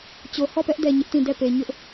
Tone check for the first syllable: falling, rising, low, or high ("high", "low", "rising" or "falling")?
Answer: low